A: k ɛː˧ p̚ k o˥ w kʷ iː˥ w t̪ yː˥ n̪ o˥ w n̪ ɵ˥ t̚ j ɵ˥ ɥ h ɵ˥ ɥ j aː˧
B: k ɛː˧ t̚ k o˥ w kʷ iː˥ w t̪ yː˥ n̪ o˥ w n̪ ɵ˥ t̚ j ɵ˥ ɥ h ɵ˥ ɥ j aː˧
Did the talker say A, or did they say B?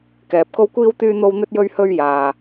A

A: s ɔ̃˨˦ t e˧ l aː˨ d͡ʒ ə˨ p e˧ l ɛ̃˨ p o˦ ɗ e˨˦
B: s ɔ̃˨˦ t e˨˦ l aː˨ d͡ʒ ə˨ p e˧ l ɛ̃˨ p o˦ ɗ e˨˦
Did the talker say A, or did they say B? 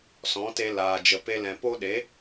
A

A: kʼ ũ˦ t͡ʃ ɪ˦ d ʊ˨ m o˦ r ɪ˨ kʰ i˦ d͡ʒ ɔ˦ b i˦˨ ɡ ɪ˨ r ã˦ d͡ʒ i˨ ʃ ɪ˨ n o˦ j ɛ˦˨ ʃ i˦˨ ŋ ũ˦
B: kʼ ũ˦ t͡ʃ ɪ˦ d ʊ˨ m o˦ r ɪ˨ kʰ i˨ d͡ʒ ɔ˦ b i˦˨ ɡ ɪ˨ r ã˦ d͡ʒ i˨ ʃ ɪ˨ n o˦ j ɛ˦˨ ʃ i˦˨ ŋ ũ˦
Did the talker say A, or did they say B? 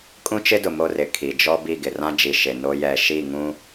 B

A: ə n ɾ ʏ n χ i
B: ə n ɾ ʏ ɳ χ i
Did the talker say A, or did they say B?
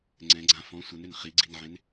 A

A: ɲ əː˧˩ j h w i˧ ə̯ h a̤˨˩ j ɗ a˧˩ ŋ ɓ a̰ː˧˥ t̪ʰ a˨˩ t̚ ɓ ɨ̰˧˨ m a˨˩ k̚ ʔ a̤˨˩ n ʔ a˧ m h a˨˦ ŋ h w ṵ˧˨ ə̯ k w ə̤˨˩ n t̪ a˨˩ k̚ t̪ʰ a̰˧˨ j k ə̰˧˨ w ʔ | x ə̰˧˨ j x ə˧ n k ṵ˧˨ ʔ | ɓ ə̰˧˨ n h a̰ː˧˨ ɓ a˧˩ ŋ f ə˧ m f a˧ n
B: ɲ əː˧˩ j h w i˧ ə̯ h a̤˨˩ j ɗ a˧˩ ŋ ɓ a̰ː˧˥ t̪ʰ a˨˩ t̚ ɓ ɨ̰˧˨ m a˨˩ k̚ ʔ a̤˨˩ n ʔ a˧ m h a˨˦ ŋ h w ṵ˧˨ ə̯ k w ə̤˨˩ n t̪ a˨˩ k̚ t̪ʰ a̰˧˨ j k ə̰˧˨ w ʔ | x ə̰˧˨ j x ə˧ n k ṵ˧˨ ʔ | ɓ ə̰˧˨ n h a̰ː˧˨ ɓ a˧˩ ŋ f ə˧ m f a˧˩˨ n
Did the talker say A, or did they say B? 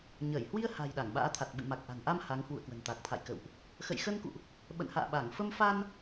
A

